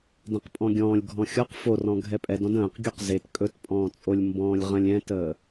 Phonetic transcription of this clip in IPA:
d ɛ̃ q pʼ ɔ̃ ɡʲ ɔ̃ː lʲ ɡʱ ɔ̃ xʲ ɔ q f o r ɔ̃ ɡʱ ɛ pʼ ɛ d ɔ̃ d ə̃ː q ɡʲ u q z e t kʼ ɵ t pʼ ɔ̃ː t͡sʼ o lʲ m b ɔ̃ː lʲ ʁ ə̃ lʲ ɛ̃ t əː

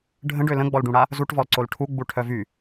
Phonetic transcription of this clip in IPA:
ɖʱ ə̃ ɖ ø l ə̃ ɡ͡b ɔ l ɖ ũ ɽ a | z u ʈ v ɔ l ǀ o l ʈʰ u ɡ͡b u ʈʰ œ v y

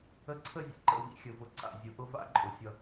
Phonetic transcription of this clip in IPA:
ə˧ ǀʰ ə˦˨ zʲ ə̰˧ ǃ ə̰˦˨ v ḭ˦ xʲ ə˧ v ʊ˧ ǀ a̰˧ zʲ ʊ˧ ʔ ʊ˦ v a̰˦ ǃʼ ʊ˧ sʲ ʌ˧

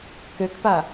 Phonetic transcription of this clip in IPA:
k ø k p a

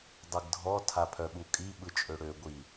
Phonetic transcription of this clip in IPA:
dˤ ɯ ɡ dʱ ɔ tʰ a pʰ œ ɓ u kʼ i ɓ ɯ t͡ʃʼ ø ɽ ø ɡʷ i

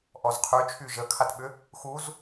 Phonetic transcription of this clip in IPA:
ʔ ɔ z qʰ y t͡ʃʰ y ʒ ə kʰ a t ɓ ʏ | x u z

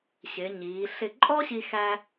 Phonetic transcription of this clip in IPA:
ɕ ɪ˩˧ ɲ iː˩˧ ɬ ɪ˧˩ ǃʼ ɔ˥ ɕ i˧ x æ˧

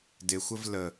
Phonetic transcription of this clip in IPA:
d ɪ xʷ ə v l ə

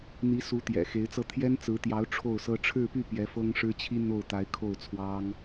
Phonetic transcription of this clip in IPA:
n̪ i˧˥ s u˧˥ t̪ j ɛ̰˨˩ x e˧˥ ɪ̯ t͡s ɤ˥˩ t̪ʰ j ɛ˥ n t͡s ɹ̩˧˥ t̪ j ɑ˧˥ ʊ̯ ʈ͡ʂʰ o˥˩ ʊ̯ s ɤ˥ ʈ͡ʂʰ ɻ̩˥˧ p y˥˩ p j ɛ˧˥ f ɤ˥ ŋ ʂ ɻ̩˥ t͡ɕʰ i˥ n̪ o˥˩ ʊ̯ t̪ a˧˥ ɪ̯ kʰ o˥˩ ʊ̯ t͡sʰ w ɑ˥ ŋ

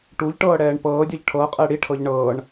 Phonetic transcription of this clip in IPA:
ʈ u ʎ ʈ ɤː ɽ ɛː ɳ p ɤː dʲ ɤ ʎ ʈʰ ɤ qʼ ɛ ɽ i ʈʰ ɤ ʎ ɳ ɤː ɳ

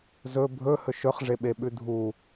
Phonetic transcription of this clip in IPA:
z ɵ bʱ ɵ h ɵ ʃ ɵ χ ʐ e ɓ e ɓ ʉ dʱ u

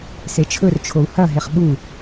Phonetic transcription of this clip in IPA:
s e t͡ʃʰ ɵ r t͡ʃʰ o u̯ h ɐ ɦ e χ ɓ u

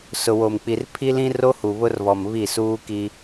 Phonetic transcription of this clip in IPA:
s ʊ˨ w o˨ m k͡p i˨ r pʰ i˦ l ĩ˦ r o˦ h u˨ β ʊ˦ r β ɔ˨ m β i˦˨ s uː˦ k i˦

